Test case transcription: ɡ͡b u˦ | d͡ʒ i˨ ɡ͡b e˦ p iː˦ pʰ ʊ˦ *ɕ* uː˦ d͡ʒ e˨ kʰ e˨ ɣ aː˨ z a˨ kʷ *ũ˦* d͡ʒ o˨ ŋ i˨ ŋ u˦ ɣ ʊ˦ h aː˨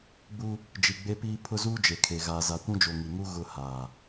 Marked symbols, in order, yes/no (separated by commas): no, yes